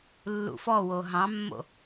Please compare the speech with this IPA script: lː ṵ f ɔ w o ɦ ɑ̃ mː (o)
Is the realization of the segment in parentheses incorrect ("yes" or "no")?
yes